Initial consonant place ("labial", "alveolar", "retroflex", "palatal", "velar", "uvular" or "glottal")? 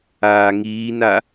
velar